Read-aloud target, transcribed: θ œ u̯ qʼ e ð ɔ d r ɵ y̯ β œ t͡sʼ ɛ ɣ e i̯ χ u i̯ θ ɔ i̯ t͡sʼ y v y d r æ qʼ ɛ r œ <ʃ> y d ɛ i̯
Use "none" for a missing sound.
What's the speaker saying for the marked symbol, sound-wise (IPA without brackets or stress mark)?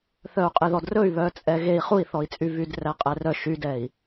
ʃ